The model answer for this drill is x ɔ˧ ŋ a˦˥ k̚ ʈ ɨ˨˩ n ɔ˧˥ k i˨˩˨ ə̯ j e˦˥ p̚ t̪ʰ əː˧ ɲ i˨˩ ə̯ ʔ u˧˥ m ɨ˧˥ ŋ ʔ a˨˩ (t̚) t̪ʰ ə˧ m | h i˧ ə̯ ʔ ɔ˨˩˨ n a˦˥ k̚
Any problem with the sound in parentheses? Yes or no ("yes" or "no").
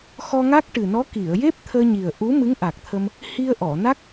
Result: yes